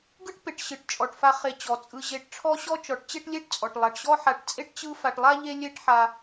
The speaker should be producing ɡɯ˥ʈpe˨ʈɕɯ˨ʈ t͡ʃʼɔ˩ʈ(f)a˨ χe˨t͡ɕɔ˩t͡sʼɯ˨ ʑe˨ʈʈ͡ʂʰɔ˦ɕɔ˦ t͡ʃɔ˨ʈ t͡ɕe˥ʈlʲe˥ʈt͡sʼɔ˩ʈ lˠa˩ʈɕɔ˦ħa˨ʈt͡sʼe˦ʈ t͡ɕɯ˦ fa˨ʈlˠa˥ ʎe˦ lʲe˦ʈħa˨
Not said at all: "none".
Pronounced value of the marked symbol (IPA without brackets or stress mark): f